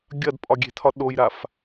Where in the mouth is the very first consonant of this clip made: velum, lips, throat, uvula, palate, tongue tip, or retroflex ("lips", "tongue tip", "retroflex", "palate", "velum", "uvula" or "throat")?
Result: velum